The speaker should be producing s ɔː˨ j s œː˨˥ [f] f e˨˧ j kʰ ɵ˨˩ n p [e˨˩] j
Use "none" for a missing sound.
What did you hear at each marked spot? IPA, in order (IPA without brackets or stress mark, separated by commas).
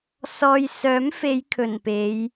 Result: m, e˨˧